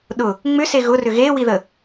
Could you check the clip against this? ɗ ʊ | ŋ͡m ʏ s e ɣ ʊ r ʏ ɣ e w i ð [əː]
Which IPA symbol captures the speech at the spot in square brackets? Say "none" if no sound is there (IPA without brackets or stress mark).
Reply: ə